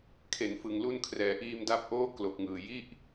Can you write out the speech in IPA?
kʰ e˩˦ n f ɯ˨˩ ŋ l u˧ n kʰ r ɛː˩˦ ʔ iː˧ m d a˦˥ p̚ ʔ oː˥˩ k l o˨˩ k̚ ŋ ɯː˨˩ j i˥˩ ʔ

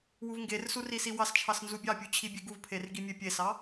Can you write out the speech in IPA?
w u v ŋ ɡ e r s u r i s i w ɑ s t͡ʃʰ ɑ s n z u bʲ ɑ pʲ u t͡ɕʰ i bʲ e ɡ u v pʰ e r ɡ i mʲ e pʲ e s ɑ

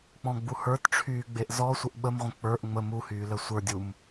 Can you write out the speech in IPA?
k͡p ɔ̃ ɡ͡b u h ə˞ t ʈ͡ʂʰ yː ɡ͡b e ʔ z ɔ sʷ ə ʔ ɓ ə m ʁʷ ə̃ k͡p ə˞ ʔ ŋ͡m ə m u h yː l ə sʷ ə˞ dʲ u m

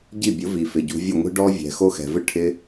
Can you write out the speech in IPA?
ɟ i˦˨ bʲ ʊ˨˦ v i˨ f ɪ˨ ɟ ṳ˧ vʲ ʊ˦˨ ŋʷ i̤˦ ɖ ɔ˦ vʲ ɛ̤˨ x o˦ x ɛ̤˨ v ɪ˦ ʈʰ ɪ˧

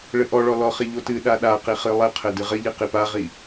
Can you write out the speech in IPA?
ɭ ɘ ʔ ɔ ɭ ɔ l ɔ χ i ʎ o t ɨ ɗ a ɗ a q i χ ɨ lˠ ɘ qʰ ɘ d ɨ ʁ ɘ ʎ i q i p a ʁ i

